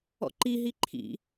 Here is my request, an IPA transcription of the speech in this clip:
ɔ̰ ǃ i ɦ i ǃʰ ḭ

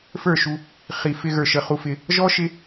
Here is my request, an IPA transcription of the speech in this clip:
f ə˞˦˨ ʃ u˧ | χ i˨ f ɪ˧ ɣ ə˞˨ ʃ ə˨ χ u˧ f ɪ˧ | ʒ ɔ˦ ʃ ɪ˦

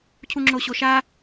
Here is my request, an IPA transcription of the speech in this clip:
cʰ u ŋ͡ǁ o ɕ o ʃ a

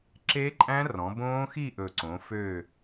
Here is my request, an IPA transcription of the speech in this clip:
ǁ e˦˥ ǃʼ æ̃˦˥ r ɔ̃˩˧ b õː˦˥ x i˥˧ ʔ ɵ˨˩ ǀ õ˩˧ f ø˥˧

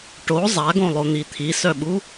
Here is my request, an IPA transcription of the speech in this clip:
ʈ o zˤ a ɡ õ lˠ o n̪ i t̪ʰ i s œ ɓ u

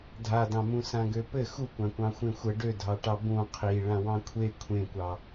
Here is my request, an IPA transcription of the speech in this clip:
dʱ a d ɑ̃ m ũ s ã ɡ ø p ɘ x u kʷ ã kʷ ɑ̃ xʷ ẽ xʷ ə ɖ ø dʱ ɑ ʈ ɑ b ũ qʰ i ɭ ã w ɑ̃ kʷʰ e kʷʰ ẽ kʷ ɑ

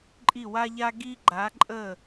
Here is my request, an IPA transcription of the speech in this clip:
ǃʼ i˥˩ w a˥ ʎ a˥ ɡ i˥ ɡ͡ǃ a˨˥ ǃʼ ə˥˩

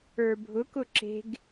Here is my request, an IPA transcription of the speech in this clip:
ə˞ bʱ ʊ k ʊ ǁ e̤ ɡ

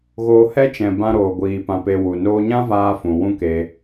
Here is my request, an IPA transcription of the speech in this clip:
ɣ oː˧ h ɛ˦ t͡ʃ ɛ̃˨ b ã˧ ɾ oː˨ ɡʷ iː˨ p ã˧ p e˧ w u˨ n oː˦ ɲ ã˦ v aː˧ f ũ˨ w ũ˦ k e˧

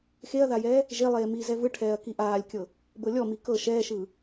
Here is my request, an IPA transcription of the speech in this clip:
x e ɐ̯ ð a j ɛː | ʒ e lˠ eː m iː z ɛ v ɯ ʈʰ ɛː ɐ̯ k i ʔ aː lʲ kʲ ɤ | b ɤ lʲ ɔ m i k ɤ ʃ ɛː ʃ ɯː

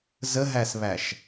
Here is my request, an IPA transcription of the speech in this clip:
z ə ɦ æ s β æ ʃ

